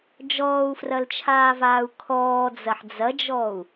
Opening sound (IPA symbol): d͡ʒ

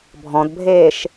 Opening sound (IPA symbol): bʱ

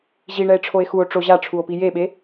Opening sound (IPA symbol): ʑ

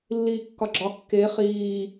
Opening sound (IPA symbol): lː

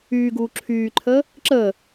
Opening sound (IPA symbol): yː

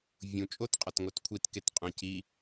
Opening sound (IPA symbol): vʲ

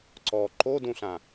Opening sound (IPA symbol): ǀ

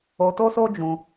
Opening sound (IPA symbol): o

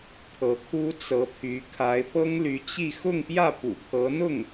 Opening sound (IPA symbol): t̪ʰ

